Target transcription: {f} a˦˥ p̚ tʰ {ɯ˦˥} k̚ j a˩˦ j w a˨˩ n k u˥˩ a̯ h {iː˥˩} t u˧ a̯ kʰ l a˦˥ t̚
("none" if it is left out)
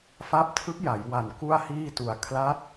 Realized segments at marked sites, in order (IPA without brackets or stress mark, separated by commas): f, ɯ˦˥, iː˥˩